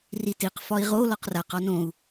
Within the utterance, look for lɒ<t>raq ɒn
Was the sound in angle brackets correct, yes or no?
no